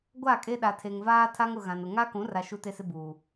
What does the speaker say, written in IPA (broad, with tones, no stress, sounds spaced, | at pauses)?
ɡʷ a˦˨ kʼ e˦ ɗ a˨ tʰ e˨ ŋ v aː˦ tʰ a˦ ŋ ʊ˨ ɣ ã˨ n ʊ˨ ŋ a˦ k ũ˨˦ r a˨ ʃ u˦ t e˦ s ɪ˦ b uː˨